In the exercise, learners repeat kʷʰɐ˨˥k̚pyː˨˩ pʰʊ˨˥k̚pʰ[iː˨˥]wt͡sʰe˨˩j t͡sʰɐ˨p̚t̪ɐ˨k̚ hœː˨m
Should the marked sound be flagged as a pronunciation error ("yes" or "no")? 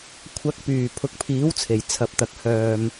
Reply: no